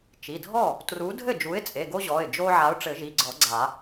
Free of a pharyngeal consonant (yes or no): no